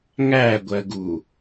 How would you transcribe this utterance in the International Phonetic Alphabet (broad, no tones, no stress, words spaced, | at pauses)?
ŋæɡʷɜɡu